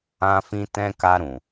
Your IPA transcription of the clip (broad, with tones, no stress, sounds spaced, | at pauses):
ã˧ f ĩ˧ t ɛ̃˧ k a˧ ɾ ũ˨